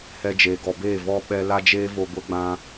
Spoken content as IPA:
hɛ˧d͡ʒeː˨ɡɔ˨beː˦˨ vɔ˦ ɓɛ˧ la˦d͡ʒeː˦vo˧ ɡʷə˧ɡ͡bã˧

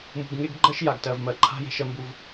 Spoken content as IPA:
mṳ˨ɡŋe˦ɡɡ͡ǃɜ˦ʃ ja˨ɡtɜ˨vmɜ˨ǃʰa̤˦ je̤˦ʃɜ˦mbu˦v

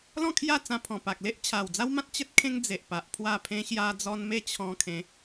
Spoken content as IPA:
lɔ̃˥˧kʰja˥˧t͡sã˧ pʰɔ̃˨˩pa˨k̚ le˦ʔ t͡ɕʰa˨˩wd͡za˦wmã˦t̚ t͡ɕə˦t̚kʰẽ˦ŋ d͡ze˨ʔpa˨ʔpʰwa˥˧ pʰẽ˧ɕja˧d͡zɔ˧n me˥˧t͡ɕʰɔ̃˧kʰẽ˨˦

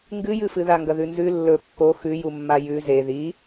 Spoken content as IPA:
ŋɡɨjɨfɨ ðaŋɡɐðʉnzʉ lːɵ pːo xʉjumːa jʉ ze ði

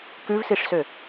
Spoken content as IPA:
kʉvsiʂsø

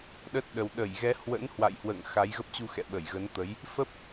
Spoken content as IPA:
ɗə˦˥t̚ɗə˨˩w ɗə˧˩jɣɛ˨˦ hwə̰˧˥nhwa̰˧˨jhwə̰ː˧˨ŋ xa˨˦jɣə˦˥p̚t͡ɕu˧ xɛ̰˧˨ ɓə˧˩jɣə˨˦nt̪ə˨˦j | fə˦˥p̚

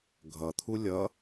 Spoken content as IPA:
ɡʱʌt̪ʰu lʲʌ

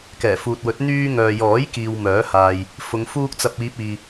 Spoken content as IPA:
kɛː˨˩fuː˨t̚wɵ˨˥t̚ n̪yː˧ ŋœː˨jɔː˨˥j kiː˨w mœː˨˥haː˨j | fʊ˨˧ŋ fuː˧k̚t͡sɐ˨p̚ iː˧p̚iː˨

